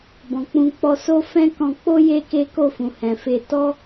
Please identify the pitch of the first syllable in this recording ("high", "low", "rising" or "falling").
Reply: low